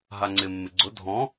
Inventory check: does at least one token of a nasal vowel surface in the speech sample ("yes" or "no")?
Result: yes